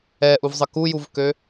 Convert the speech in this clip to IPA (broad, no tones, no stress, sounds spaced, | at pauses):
ɛ ʔ u v zˤ ə k u j u v k ø